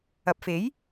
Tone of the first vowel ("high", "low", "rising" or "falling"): low